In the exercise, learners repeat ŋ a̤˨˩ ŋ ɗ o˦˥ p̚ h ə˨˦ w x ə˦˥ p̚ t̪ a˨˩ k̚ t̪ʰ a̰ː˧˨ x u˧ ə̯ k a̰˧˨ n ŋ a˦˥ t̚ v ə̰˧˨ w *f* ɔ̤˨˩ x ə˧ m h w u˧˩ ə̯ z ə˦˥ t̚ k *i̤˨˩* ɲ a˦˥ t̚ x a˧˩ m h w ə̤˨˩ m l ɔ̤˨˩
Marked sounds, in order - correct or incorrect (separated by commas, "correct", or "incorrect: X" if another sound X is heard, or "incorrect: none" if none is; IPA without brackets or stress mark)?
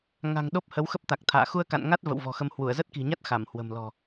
incorrect: v, correct